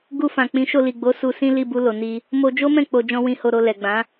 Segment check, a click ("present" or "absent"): absent